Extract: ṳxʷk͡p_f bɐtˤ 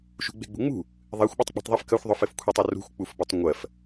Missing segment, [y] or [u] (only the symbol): u